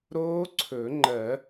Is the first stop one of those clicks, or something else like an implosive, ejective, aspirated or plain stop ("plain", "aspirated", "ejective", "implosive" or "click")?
click